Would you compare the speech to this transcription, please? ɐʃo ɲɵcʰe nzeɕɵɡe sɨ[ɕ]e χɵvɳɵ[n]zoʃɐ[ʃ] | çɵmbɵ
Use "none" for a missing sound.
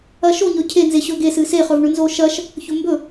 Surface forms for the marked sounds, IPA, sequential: s, n, ʃ

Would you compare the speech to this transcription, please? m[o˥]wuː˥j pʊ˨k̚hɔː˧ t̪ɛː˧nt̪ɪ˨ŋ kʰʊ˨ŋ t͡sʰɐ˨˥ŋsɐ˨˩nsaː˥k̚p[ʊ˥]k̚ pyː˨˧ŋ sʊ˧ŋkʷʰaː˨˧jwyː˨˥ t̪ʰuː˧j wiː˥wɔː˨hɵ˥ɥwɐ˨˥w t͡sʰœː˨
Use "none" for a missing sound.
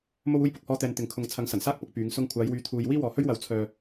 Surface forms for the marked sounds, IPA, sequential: o˥, ʊ˧

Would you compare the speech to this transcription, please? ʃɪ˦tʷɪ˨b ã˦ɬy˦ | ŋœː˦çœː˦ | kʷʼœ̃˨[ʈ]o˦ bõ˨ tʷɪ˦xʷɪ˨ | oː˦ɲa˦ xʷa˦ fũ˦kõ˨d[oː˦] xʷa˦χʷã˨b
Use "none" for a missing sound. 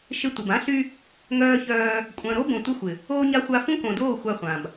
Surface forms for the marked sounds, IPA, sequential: ɾ, oː˦˨

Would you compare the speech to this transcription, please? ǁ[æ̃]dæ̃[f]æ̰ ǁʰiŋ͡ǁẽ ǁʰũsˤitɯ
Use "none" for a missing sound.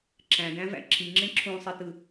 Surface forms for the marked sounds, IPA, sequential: æ̃, v

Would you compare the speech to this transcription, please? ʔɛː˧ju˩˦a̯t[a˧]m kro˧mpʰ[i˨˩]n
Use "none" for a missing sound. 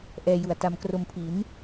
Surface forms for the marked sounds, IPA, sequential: a˧, i˩˦

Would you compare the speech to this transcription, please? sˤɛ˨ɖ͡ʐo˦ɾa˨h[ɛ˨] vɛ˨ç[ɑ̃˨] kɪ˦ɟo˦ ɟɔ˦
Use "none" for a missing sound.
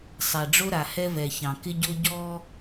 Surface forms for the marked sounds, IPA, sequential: ɛ˦, ɑ̃˨

